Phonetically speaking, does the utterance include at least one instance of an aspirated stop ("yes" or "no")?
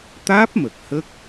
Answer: no